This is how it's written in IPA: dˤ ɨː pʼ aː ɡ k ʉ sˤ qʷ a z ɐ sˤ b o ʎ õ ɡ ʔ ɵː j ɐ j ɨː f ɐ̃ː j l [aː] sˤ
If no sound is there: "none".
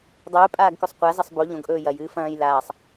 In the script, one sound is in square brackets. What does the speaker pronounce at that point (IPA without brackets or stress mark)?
aː